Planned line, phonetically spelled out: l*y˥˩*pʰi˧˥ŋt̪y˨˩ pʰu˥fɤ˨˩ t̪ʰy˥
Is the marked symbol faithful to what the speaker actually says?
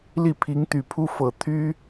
no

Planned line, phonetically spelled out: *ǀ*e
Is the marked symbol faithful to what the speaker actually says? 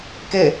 no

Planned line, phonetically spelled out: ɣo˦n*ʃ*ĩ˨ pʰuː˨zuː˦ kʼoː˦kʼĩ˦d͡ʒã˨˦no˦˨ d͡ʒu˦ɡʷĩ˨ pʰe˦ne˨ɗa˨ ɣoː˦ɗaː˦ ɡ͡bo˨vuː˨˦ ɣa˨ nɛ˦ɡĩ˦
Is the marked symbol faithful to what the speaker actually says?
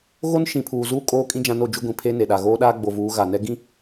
yes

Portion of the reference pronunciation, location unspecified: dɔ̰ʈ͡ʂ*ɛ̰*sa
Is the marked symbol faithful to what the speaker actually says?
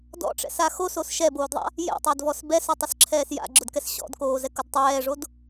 yes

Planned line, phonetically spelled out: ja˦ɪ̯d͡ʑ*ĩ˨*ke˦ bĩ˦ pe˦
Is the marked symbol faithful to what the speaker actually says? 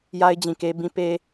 yes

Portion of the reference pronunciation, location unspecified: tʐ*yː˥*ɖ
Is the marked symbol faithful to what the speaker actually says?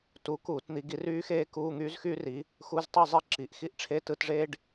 no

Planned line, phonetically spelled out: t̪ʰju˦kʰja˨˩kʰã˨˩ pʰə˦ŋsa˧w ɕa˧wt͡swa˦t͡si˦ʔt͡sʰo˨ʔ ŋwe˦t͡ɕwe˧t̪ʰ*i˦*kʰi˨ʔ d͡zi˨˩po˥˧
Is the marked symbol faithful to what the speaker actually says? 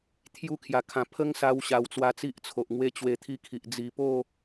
yes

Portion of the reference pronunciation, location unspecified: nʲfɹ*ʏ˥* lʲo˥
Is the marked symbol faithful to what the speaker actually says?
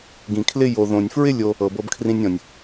no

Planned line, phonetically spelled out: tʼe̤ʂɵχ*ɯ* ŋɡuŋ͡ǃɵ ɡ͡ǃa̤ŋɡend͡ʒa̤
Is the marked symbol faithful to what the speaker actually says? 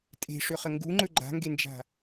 no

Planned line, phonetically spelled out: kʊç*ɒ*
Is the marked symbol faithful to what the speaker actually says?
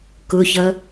no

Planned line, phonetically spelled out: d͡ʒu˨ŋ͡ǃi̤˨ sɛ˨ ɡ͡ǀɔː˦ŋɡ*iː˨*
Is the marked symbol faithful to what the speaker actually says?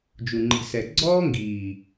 yes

